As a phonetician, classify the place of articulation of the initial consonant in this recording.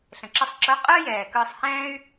alveolar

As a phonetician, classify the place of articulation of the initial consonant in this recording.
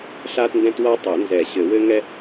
alveolar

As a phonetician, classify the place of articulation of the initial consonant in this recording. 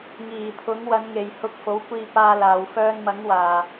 velar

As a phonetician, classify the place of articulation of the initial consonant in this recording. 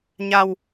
palatal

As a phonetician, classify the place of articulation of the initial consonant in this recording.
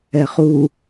uvular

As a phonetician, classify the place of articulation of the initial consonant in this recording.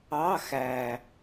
velar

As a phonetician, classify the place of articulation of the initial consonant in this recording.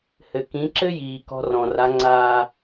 glottal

